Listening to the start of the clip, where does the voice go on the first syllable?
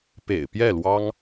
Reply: low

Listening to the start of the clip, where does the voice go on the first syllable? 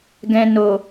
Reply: low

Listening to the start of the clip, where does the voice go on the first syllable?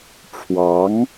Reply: rising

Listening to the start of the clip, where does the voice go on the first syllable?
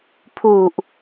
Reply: low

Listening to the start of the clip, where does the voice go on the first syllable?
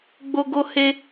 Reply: high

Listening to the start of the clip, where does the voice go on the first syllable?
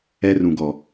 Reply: high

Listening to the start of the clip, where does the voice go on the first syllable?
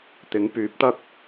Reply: rising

